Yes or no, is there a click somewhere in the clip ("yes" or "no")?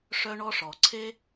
yes